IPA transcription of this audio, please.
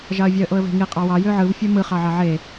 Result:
ʒɑə̯vʲɑə̯ʔoə̯ve̤ ŋi qʼɑwɑ jøʕɯv fʲomɯ χɑʕɑʕe

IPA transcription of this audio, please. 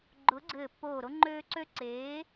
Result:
ɡ͡ǃʊː˨˥ɡ͡ǀɘː˧˩pːoː˧˩ɾo˦ ŋ͡ǃøː˦ ǀø˦ǀeː˨˥

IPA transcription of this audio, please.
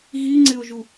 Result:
ɣiŋ͡ǀɪo̯ʒu

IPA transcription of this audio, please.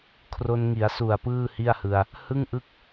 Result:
kʰro˧nŋi˩˦a̯su˨˩a̯ pɯː˥˩hi˥˩a̯hɯ˧a̯ | hɯ˥˩ŋʔɯ˥˩k̚

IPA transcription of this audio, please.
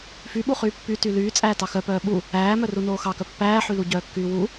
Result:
fyɓuχyː pːy tylyː t͡sʼæːtɑxœpœː ɓu | æːmœ runoːxɑkœ pːæːħylu ɟœːkːyːwu

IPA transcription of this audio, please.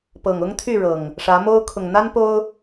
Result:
pɤ˨˩ŋʊ˦ŋt̪ʰy˥˨ ɻɤ˨˩ŋ | ʂä˨˦mo˦ʊ̯ kʰʊ˨˩ŋn̪a˦n po˦ʊ̯

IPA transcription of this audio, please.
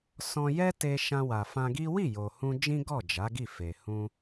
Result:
sɔ̃˧jɛ˦te˧ ʃã˧wa˨fã˧ɡi˦ wi˦˨ jo˨hũ˧ d͡ʒĩ˦ɡɔ˦˨ d͡ʒa˨˦ɡi˦˨fe˨ hũ˧

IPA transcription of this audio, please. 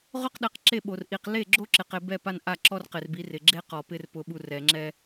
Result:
ʁʊ˦qɗɛ˨˦q ǁe˦˨ɓo˨r ʔi˨q le˦˨ɡ͡ǁo˦ǁɪ˨qe˨ bɛ˦˨pa˦nʔa˦˨ ǁɔ˦rqɪ˨r bi˨˦rɪ˨ ɡ͡ǁe˦ qɔ˨pɪ˦r pʊ˨ɓu˨ rɛ˨ŋ͡ǁɛ˦

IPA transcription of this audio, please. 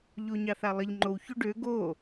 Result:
ʎoɲɑθalˠəʎ ŋ͡ǃow çoɖø ɡo

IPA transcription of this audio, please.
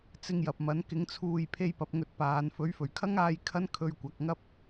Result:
t͡sɪ˧ŋjɐ˨p̚mɐ˨˥n kɪ˨˧ŋt͡sʰuː˨j pʰe˧jpɐ˨˥p̚ŋɵ˨˥t̚ paː˨˧n fɵ˨˥ɥfɵ˨˩ɥkʰɐ˥ŋaː˧j kʰɐ˥nkʰɵ˧ɥkʷɐ˨˥k̚ŋɐ˥p̚

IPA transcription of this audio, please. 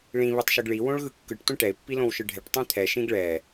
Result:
ɭĩ βitˤʃɯɡɭi wõɭɣɯkːɯʈ tʷɛ̃ʈɛɪ̯ pːilõwʃɯɖʱɛʈ tˤɛ̃t̪ʰɛ ʃĩɡɭɛ

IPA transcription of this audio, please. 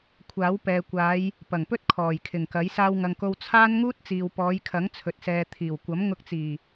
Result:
kʷʰaː˨˥wpɛː˨kʷaː˨˧j | pɐ˨˩ŋpɵ˥t̚ kʰɔː˨˩jkʰɪ˨˩ŋkɐ˨˥j saː˧wŋɐ˨ŋko˧w t͡sʰaː˥n ŋuː˥t̚t͡siː˨wpɔː˨˧jkʰɐ˨˥ŋ t͡sʰɵ˨t̚sɛː˨ t̪ʰiː˨˩wkʷɐ˨˥mŋʊ˧k̚t͡siː˨˩

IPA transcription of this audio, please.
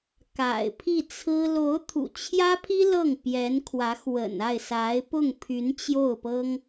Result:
ka̰˨˩ɪ̯pʰi˥˩t͡sʰɹ̩˥ lo˧˥ʊ̯t̪ʰṵ˨˩t͡ɕʰjä˥pʰi˥ lɤ˥˩ŋ pjɛ˧˥nkʰwä˧˥xwə̰˨˩na˥˩ɪ̯ sa˧˥ɪ̯pʊ˥˩ŋ pʰy˧˥nt͡ɕjo˥˩ʊ̯pɤ˥ŋ

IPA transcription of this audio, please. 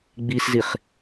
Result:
ɡ͡bisziχ

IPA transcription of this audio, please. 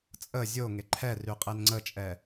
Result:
t͡sʼə zʲo ŋeǃʰɛry qʼenŋ͡ǀət͡ʃʼɛ

